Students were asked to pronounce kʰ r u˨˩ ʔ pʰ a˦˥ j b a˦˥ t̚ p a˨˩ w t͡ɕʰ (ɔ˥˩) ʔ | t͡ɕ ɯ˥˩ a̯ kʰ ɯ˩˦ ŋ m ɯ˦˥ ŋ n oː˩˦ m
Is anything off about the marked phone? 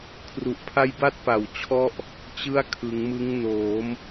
no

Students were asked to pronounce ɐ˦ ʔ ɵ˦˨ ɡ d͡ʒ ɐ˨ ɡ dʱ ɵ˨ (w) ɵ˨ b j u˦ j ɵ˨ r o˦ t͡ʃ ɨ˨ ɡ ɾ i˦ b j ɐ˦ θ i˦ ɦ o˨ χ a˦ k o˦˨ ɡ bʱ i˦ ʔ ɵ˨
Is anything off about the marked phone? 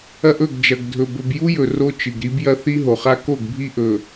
yes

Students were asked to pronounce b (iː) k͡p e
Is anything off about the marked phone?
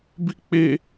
yes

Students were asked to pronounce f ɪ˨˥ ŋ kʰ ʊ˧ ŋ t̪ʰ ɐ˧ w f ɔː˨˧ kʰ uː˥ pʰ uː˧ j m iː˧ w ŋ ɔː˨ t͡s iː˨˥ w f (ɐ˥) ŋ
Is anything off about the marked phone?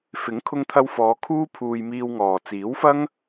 no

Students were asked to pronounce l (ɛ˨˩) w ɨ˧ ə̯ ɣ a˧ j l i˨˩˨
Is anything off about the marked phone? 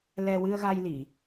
yes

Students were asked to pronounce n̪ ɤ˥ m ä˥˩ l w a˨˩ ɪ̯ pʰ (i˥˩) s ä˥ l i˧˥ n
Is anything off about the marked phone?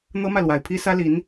yes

